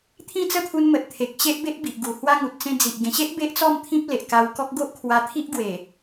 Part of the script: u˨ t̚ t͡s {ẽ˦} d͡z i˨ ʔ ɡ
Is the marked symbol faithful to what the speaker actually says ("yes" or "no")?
yes